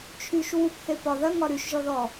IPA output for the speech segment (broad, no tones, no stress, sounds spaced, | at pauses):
t͡ʃʰ y ʃ w u p θ e p ɒ ð ɐ ŋ ɒ ɾ y ʃ ʒ ɔ ð ɔ